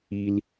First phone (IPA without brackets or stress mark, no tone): i